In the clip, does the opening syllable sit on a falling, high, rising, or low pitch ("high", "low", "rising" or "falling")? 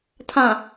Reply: low